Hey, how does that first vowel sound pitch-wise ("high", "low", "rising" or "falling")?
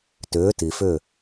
rising